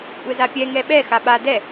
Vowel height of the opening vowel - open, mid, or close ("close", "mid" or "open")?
mid